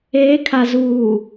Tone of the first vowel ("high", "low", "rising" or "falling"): rising